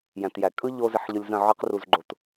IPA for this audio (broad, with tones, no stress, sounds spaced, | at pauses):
j æ̃˨ t j æ˨ kʼ ɯ˦ ʎ o˦ z ɪ˧ ħ ʎ ɯ˧ lʲ z ə̃˦˨ ʕ ɯ˦ q r u˧ z ɡ͡ǃ o˧ t